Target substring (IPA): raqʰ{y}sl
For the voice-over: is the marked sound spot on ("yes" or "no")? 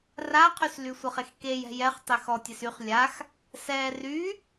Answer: yes